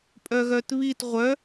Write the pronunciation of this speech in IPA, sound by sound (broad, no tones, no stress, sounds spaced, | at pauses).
pʼ œ ɣ œ t β i t ʁʷ œ